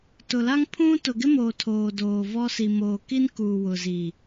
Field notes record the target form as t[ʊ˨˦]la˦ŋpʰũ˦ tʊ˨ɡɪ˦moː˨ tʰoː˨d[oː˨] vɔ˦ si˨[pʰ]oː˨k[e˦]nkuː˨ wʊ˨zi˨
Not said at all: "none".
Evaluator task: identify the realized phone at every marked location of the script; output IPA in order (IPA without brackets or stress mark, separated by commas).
ʊ˨, oː˨, m, i˦